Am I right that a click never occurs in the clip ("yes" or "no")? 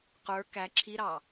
no